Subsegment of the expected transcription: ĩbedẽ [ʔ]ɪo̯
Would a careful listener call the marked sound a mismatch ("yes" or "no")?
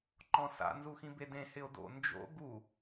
yes